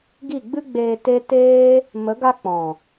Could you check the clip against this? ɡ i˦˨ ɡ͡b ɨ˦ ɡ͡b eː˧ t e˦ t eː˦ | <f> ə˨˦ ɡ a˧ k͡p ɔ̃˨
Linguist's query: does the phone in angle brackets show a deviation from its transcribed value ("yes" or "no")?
yes